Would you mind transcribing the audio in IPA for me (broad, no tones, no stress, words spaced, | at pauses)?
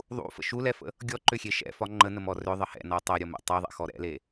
ðˤṵfə̰ ʃulɛfə̰ | ɡʲɔǃʏxʲe ʃɛ̰fɒ ŋ͡ǃənəmɔ rʏðˤə hɛ̰nɔ tˤɛɾʲɔmɛ̰ tˤɐðˤɛ̰xɔ ɾɛ̰le